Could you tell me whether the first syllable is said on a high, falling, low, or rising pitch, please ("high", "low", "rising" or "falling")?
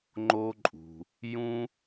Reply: high